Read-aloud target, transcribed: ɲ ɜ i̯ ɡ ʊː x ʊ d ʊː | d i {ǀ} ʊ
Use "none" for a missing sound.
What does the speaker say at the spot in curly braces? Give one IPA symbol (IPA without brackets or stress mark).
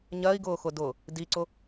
ǀ